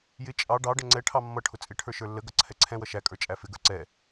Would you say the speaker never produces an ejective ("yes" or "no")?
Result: no